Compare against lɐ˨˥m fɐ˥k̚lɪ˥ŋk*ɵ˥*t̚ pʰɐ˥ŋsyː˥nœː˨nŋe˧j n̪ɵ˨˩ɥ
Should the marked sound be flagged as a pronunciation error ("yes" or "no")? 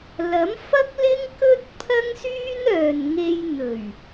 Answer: no